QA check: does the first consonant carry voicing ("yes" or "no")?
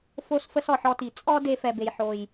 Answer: no